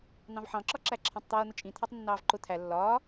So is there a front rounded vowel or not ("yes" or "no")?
no